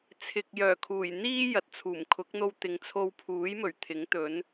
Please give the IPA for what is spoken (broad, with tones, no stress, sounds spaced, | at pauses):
t͡sʰ ɪ˨ k̚ j œː˨˩ kʰ uː˨˩ j n̪ iː˥ j ɐ˨˥ t̚ t͡sʰ uː˨˩ m kʰ ʊ˨˥ k̚ n̪ o˧ w t̪ ɪ˨ ŋ t͡sʰ o˧ w pʰ uː˨˥ j m ɵ˨˩ ɥ t̪ʰ ɪ˨˥ ŋ t̪ ɵ˨˥ n